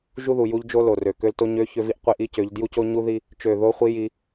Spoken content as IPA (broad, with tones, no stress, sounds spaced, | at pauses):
ʒ u˦ ð u˨ j u˦ ʎ d͡ʒ o˦ l o˨ r ø˨ k ø˦ l t o˦ ɲ ø˦ ç ø˦ v i˦ ʔ qʷ i˦ ʔ i˦ c ø˨˦ ʎ d j u˦ c o˦ ɲ u˦ ð i˦ | t͡ʃ ø˦˨ ð o˦ χʷ i˦ j i˦